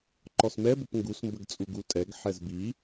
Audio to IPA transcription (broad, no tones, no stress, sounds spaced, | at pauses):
ǃ ɔ s m ɛ b ʊ p ŋ ɡ u s m b ə ɡ t͡sʼ u ɡ u tʼ ɛ ɡ ħ ɛ z b i